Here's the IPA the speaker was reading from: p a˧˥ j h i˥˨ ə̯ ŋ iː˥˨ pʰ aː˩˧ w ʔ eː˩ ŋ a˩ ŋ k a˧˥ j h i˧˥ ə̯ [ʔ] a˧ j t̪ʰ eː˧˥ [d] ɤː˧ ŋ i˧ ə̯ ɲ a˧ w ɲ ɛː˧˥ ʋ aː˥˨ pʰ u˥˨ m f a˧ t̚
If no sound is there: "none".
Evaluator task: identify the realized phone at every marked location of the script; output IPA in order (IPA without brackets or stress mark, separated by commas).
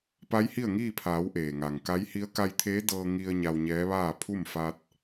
k, d